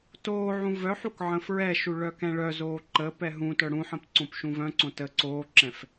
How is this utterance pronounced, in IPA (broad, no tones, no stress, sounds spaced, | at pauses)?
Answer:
t oː ʕ ũ v œ ħ u k ʕ ə̃ f ɹ ɛ ʃ u ɭ œ k ɛ̃ ɭ œ z oː ǃ ə p ɛ ɦ ũ t œ ɽ ũ ħ ə̃ p ǀ õ p ʃ ũ v œ̃ ǀ õ t ə ǀ oː ǁ ɛ̃ f